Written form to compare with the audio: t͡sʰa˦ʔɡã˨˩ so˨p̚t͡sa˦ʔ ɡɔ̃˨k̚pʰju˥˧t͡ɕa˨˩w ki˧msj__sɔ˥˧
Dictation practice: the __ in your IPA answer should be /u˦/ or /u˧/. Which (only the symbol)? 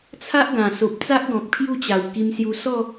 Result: u˧